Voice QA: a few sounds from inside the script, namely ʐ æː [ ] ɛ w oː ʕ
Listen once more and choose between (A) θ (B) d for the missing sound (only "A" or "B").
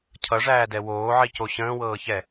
B